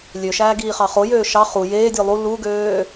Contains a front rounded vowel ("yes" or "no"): yes